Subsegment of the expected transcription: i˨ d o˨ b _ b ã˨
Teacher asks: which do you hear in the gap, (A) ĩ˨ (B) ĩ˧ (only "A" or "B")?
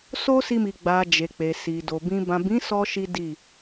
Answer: A